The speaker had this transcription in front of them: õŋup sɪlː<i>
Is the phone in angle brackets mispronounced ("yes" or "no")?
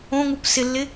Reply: yes